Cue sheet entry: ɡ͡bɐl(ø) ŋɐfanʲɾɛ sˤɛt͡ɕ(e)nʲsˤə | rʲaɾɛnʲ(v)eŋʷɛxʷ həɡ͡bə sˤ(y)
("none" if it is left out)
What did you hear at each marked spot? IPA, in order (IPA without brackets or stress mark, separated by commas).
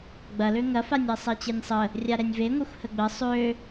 ø, e, v, ø